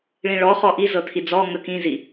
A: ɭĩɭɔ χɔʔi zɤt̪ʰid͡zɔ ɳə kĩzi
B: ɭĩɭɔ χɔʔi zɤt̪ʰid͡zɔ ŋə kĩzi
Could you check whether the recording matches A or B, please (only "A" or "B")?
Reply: B